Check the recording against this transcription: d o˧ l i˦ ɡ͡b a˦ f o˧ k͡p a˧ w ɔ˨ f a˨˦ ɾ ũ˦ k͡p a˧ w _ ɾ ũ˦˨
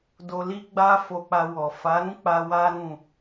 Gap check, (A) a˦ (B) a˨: A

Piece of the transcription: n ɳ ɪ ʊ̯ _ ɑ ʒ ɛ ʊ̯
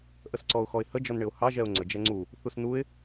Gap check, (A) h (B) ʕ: A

